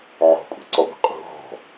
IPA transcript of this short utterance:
ʕɔ̤kʷʼe̤ǀɔɡʷe̤ qʼṳ ɦɔ̤

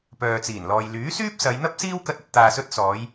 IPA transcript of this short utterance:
pœː˨t͡siː˨˩nlɔː˨j lyː˨˥syː˥p̚sɐ˨˧jn̪ɐ˥p̚ siː˥w kɐ˧t̚ɐ˨t̚ t̪aː˨sɵ˧t̚ sɔː˨˧j

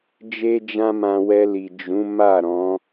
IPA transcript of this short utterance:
d͡ʒe˦d͡ʒã˦mã˧ wɛ˧li˨ d͡ʒũ˨˦ ma˦˨ɾɔ̃˨˦

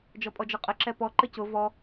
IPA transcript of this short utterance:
d͡ʒɔpʼɔd͡ʒɔqʼə ǁɛpɔ ǃəcʊ vɔ

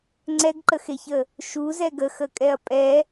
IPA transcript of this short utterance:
ŋ͡ǀɛɡǃəxeçə | ʃuzɛ ɡəxəkʼɛɐ̯ pʼɛ

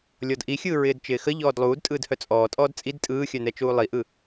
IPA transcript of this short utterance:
lʲɔdʔixʲɯː ɹɪːdt͡ʃɪːxə ʎɔːdlˠuːd tʼɯːdhœt͡sʼɔːtʼɔːd t͡sʼid tʼɯːxʲœnɛ t͡ʃuːlˠiʔɯ

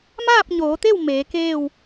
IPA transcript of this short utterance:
maː˥˨p̚ɲoː˩˧t̪e˥˨w meː˩˧keː˥˨w

